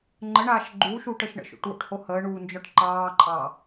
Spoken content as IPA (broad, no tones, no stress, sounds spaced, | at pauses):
ŋ͡ǃ ə ɳ aː ʃ ɡ͡ǃ uː ʃ uː ʈ ə ʃ ɳ ə̰ ʃ o̰ ʈ w o̰ ʈ h o h əː ɳ uː n d͡ʒ ɒ ʈ ǃ ɑː ǃʼ ɑ